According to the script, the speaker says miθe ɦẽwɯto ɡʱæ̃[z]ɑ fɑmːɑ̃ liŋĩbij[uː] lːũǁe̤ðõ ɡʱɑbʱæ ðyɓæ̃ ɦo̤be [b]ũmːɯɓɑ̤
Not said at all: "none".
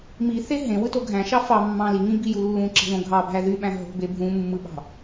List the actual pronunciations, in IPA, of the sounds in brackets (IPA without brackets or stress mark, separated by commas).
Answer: ʃ, u, bʱ